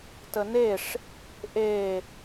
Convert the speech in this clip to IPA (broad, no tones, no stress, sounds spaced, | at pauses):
t ə n e ʂ | ʔ e